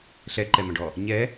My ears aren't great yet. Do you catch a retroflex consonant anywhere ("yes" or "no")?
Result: yes